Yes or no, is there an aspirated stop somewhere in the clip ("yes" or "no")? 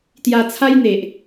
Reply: yes